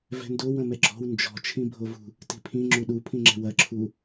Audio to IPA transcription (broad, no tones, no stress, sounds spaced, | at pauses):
v ɛ̤ n d o w ɐ̃ m ɛ ɡ͡ǁ ɔ̤ w n d͡ʒ ɔ̤ t͡ʃʰ ĩ bʱ o v ṳ | t i̤ pʰ ĩ ŋ͡ǁ u ɗ u pʰ ĩ ŋ͡ǁ ɛ̤ w ɐ ǁʰ u